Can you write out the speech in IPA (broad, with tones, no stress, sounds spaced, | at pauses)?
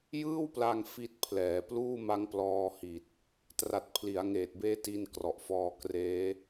j ɯː˥˩ w p l a˧ ŋ f i˦˥ t̚ pʰ l ɛː˩˦ p l uː˥˩ m a˦˥ ŋ p l ɔː˧ h i˨˩ t̚ | t r a˨˩ t̚ pʰ l i˩˦ a̯ ŋ eː˨˩ t̚ b eː˦˥ t i˧ n k r ɔ˨˩ ʔ f ɔː˧ k r eː˦˥